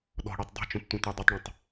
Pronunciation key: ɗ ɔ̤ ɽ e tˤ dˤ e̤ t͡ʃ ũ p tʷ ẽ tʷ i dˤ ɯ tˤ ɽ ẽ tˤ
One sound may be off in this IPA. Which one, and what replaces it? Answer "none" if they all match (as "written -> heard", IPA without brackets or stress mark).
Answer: none